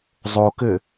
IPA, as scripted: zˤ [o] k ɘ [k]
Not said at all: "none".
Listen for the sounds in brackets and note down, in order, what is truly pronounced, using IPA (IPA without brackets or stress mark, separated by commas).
o, none